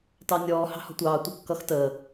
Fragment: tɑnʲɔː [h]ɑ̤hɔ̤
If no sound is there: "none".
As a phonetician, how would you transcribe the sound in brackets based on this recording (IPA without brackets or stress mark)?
h